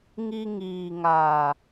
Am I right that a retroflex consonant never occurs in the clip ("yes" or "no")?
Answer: yes